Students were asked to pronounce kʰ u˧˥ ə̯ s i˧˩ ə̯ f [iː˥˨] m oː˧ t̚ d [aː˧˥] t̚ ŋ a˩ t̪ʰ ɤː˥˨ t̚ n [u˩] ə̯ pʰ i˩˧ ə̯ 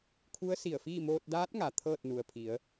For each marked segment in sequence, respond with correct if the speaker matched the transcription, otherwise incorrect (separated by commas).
correct, correct, correct